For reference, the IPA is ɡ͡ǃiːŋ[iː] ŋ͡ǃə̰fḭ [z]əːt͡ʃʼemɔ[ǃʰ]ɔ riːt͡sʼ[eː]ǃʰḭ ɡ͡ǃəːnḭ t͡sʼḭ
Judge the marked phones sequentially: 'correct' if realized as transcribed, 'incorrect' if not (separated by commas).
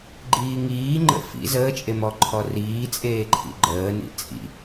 correct, correct, correct, correct